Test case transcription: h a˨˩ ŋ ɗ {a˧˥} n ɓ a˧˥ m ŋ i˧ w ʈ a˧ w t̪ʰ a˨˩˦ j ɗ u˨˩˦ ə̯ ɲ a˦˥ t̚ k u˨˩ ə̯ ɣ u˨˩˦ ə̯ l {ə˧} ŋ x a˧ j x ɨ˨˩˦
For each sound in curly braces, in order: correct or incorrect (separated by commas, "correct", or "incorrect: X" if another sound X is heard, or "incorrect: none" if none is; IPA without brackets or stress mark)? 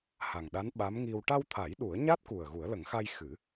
correct, incorrect: ə˨˩˦